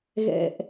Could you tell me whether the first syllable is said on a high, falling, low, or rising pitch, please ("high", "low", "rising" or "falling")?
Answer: low